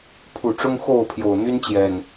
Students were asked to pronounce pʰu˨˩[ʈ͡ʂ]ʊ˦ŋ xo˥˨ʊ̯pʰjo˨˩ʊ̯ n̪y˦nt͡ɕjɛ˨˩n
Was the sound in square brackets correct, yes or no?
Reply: yes